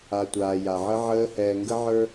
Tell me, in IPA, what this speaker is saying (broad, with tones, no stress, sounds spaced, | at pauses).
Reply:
a˨ tʷ aː˨ j a˨ ʕ ə˦ ʕ əː˦ h ɛː˨ ŋ ɡ ə˦ ʕ ə˞˦